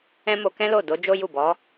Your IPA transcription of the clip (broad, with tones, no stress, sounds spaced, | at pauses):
ɛ̃˦ m o˧ k ɛ̃˦ l o˦˨ d o˨˦ d͡ʒ o˦ j u˦˨ b ɔ˨˦